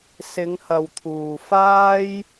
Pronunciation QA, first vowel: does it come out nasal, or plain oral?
oral